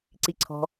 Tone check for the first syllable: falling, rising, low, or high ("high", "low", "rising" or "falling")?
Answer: low